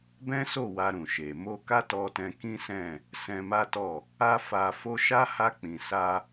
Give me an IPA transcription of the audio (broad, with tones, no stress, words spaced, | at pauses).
bɛ̃˦so˦˨ wa˧ɾũ˨ʃe˨ mo˧ka˦tɔ˧tɛ̃˧ kĩ˦sɛ̃˦˨ | sɛ̃˧ma˦tɔ˦˨ | a˦fa˧fo˦ ʃa˦ ha˧k͡pĩ˨ sa˧